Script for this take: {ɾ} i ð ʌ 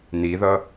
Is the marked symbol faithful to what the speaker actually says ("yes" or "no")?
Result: no